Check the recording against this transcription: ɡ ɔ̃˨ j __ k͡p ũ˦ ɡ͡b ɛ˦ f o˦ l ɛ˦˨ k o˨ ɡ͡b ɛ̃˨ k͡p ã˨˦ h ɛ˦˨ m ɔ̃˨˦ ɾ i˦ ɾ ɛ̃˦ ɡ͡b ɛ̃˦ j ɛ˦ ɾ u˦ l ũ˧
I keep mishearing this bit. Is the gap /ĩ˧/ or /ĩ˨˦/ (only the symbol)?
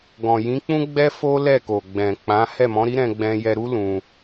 ĩ˨˦